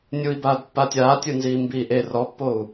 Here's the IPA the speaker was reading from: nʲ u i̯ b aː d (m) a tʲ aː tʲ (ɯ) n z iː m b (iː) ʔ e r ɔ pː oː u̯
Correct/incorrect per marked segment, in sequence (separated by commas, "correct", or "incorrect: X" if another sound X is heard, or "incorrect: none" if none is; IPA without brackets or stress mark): incorrect: pː, correct, correct